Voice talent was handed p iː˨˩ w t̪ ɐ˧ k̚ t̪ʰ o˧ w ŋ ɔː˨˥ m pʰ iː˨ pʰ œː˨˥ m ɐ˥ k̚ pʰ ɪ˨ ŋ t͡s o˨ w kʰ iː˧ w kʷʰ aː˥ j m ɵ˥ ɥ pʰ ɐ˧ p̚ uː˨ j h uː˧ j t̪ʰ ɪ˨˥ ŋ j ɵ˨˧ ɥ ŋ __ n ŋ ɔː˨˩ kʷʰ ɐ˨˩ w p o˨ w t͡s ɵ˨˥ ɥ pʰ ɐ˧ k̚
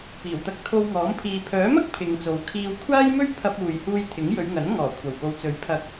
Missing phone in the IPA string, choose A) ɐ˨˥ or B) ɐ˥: A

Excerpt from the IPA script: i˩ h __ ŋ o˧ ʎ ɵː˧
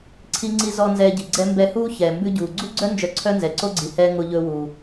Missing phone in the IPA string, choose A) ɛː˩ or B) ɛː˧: B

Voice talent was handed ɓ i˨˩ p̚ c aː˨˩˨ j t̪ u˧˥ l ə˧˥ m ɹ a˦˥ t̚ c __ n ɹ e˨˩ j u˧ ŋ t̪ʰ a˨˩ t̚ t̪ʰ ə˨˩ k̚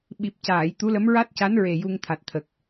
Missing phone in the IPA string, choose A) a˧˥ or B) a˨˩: A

